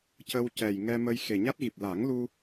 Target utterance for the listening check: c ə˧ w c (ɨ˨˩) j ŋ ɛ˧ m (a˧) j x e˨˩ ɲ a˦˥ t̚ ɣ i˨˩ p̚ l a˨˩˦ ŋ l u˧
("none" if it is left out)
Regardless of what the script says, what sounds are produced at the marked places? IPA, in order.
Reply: ɛ˨˩, ə˧

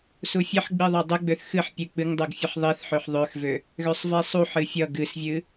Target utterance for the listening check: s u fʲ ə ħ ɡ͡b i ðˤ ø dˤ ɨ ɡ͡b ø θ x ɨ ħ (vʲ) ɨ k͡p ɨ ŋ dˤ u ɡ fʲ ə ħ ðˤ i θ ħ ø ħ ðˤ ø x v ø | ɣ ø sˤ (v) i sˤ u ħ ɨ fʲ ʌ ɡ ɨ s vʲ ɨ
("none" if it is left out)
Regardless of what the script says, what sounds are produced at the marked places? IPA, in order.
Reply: pʲ, v

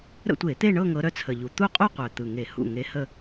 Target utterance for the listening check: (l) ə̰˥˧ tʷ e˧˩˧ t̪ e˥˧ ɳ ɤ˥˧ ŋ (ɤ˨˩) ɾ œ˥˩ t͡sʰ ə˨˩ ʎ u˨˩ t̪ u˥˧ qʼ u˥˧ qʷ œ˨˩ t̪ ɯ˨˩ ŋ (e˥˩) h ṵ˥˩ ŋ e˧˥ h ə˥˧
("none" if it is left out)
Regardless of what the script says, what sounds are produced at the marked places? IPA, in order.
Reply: ɾ, ɤ˧˥, e˧˩˧

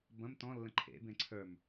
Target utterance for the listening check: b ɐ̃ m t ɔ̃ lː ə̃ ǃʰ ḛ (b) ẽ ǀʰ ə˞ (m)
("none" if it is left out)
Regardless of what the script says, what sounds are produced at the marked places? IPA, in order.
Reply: b, m

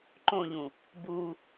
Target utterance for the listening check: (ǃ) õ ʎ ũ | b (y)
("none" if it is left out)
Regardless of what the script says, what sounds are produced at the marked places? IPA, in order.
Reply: ǃ, u

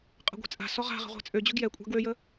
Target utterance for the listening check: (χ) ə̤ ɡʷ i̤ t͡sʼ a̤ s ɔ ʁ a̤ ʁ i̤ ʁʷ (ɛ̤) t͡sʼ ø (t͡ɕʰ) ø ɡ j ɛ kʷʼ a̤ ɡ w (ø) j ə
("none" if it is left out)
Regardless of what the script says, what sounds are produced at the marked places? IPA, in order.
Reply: qʼ, ɛ̤, d͡ʑ, ø

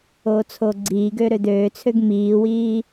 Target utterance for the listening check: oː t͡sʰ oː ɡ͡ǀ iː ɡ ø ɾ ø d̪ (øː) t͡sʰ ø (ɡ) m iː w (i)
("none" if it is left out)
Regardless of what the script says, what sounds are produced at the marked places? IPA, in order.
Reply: øː, ɡ, iː

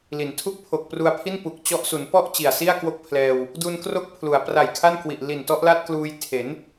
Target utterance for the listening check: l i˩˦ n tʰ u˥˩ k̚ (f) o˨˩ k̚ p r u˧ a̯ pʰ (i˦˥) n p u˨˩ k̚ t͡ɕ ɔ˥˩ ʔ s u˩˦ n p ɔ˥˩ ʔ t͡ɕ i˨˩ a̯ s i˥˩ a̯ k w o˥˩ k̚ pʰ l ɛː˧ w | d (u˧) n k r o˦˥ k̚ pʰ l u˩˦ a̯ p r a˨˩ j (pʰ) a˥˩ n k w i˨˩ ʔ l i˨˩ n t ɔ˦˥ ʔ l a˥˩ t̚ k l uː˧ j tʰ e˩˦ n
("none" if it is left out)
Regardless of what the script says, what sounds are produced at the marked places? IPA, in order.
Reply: pʰ, i˥˩, u˧, kʰ

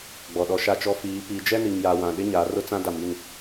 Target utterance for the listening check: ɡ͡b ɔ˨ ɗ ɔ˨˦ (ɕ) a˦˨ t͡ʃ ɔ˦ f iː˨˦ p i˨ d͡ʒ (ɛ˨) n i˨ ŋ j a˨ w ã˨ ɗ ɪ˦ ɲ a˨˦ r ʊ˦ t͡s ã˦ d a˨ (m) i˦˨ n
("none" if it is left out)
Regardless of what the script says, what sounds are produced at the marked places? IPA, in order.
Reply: ʃ, ɛ˦, m

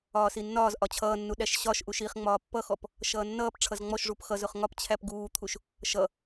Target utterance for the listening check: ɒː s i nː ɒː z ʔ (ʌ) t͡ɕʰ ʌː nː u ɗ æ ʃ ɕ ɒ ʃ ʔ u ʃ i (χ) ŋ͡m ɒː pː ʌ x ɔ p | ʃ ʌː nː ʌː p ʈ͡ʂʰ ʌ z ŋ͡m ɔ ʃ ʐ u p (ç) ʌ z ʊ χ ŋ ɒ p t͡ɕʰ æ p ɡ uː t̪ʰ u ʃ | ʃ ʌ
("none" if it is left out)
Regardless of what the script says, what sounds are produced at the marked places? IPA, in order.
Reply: ɒ, χ, x

